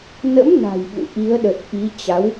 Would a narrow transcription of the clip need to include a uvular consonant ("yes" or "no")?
no